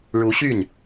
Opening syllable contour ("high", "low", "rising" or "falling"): rising